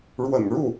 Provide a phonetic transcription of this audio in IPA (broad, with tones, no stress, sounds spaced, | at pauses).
ɻ w ə̰˨˩ n ɻ u˥˩